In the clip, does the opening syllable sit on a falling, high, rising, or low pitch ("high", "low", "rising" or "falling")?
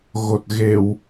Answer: low